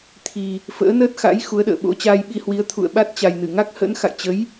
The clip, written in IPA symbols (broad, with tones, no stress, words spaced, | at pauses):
t̪ʰi˨˩ | fə̰ː˧˥nəː˦˥t̚ xa̰˧˥j xu˨˦ə̯ɗə̰ː˧˨ ɓo̰˧˥t͡ɕaː˧jɓi˧hwi˨˦ə̯ t̪ʰṵ˧˨ə̯ɓa˦˥t̚t͡ɕa˨˩j nɨ˧˩ŋa˦˥k̚hə̰˧˥n xa̰˧˨jt͡ɕə˨˦j